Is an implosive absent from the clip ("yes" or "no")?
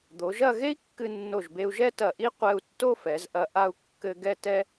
yes